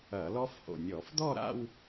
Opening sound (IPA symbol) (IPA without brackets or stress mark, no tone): ɐ